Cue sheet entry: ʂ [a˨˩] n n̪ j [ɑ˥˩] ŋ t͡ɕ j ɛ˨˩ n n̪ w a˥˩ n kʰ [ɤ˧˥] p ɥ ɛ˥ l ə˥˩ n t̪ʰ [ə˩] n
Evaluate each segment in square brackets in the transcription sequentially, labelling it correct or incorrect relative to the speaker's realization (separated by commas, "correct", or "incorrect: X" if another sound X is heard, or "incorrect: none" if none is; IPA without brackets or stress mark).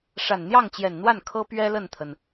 correct, correct, incorrect: ɤ˥, correct